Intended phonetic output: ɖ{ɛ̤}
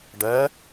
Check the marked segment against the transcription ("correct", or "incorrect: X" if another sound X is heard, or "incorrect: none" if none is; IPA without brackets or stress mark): incorrect: ɛ